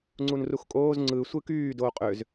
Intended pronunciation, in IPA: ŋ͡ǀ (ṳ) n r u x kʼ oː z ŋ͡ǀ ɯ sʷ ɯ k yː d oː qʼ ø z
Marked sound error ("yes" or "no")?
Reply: yes